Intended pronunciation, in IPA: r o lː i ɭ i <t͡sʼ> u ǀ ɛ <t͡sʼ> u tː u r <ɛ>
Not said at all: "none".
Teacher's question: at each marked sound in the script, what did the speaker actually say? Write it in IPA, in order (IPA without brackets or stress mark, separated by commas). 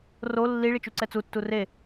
t͡ʃ, t͡s, e